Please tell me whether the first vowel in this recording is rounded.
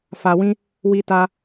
no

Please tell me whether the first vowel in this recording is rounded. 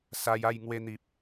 no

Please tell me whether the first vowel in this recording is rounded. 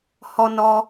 yes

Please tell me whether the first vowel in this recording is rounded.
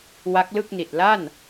no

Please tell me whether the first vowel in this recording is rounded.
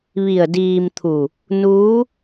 no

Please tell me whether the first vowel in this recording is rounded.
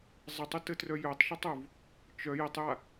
no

